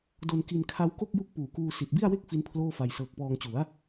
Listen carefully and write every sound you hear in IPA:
do˧nki˧nkʰa˦˥w ko˥˩k̚ju˦˥k̚ puː˨˩kuː˧ si˨˩t̚bi˥˩a̯we˥˩k̚ fi˦˥npʰloː˥˩fa˧j sɤː˨˩k̚pɔː˧ŋt͡ɕu˩˦a̯

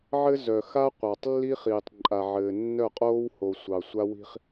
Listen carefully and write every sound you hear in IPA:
ʕɘ˦zœ˨ xa˦ qʷɑ˨tˤlːi˦χiː˨tˤ ǃʼa˨ʕɘː˨nːœ˦˨qʼoː˦w ho˨sʷɑ˨ sʷa˦wi̤˦χ

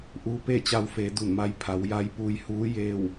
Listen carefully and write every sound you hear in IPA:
ʔuː˧pe˥˨t͡ɕa˧wfeː˩˧ du˧˩nma˧˥j pʰa˩˧wja˧˥jpuː˧j huː˧˥ jeː˧˩w

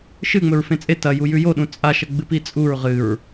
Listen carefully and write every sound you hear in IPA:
ʃɨŋ͡mɵɹ fẽt͡sʼe tɐju jʉjoɗũ t͡sʼaʃɐ ɡ͡bɨpit͡sʼuɹ ʁɨɹ

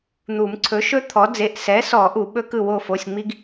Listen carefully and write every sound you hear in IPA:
n̪u˨˩˦mǀʰɵ˩˥ʃɵ˥t̪ʰɔ˩˥ d͡ze˩˧˩ʔsɛ˩˥sɔ˨˩˦ ʔu˨˩˦ ɓɵ˥kɯ˥˩wo˥˩fo˩˧˩sʲ ŋ͡mi˥ɡ

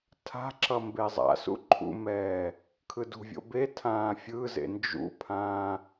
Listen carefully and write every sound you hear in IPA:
tʰa̤ǁʌ mbezˤa̰sṵ ǃʰṵmɛː | kʰɯdṳvʲo̰ betʰãː fʲɯzḛ nd͡ʒṵpʰãː

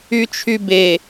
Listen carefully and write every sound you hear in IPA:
yt͡ʃʰybe

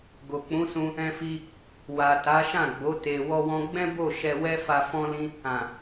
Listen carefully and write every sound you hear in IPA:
ɡo˨k͡pũ˨˦sũ˧ | ɛ̃˧fi˧ | wa˨ta˨˦ʃã˦˨ɡ͡bo˨˦ te˧ wɔ˧wɔ̃˧ɡ͡bɛ̃˦bo˦˨ ʃɛ˧wɛ˦fa˧ fɔ̃˦lĩ˦ | ã˨

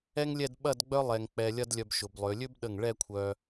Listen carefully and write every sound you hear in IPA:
ɛ˥ŋlʲɛ˥˧dɓɐ˥˧dɡ͡bœ˥ lˠɛ˧ŋk͡pɛ˧ lʲɐ˥dlʲœ˧bʃʊ˩˧b lˠø˩˧lʲø˥bɗə˧˩ŋ ɭɛ˥˧kʷʰœ˧

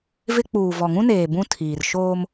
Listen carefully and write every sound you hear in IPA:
vɪ˦ k͡puː˨vɔ˨ŋũ˦neː˨ bũ˦ tʰiː˨rʃoː˦m

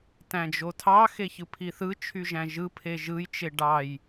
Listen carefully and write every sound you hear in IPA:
tæ̃d͡ʒotʰɑ xeçɯpʰiθɯ t͡ʃʰyʒæ̃ʒɯ pʰeʒɯj t͡ʃeɖɑj

